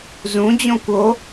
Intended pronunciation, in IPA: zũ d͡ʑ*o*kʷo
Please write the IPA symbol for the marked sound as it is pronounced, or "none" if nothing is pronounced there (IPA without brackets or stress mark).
õ